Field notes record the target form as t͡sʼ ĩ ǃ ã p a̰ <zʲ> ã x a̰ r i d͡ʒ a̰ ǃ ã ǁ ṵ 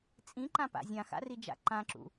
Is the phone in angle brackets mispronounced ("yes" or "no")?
no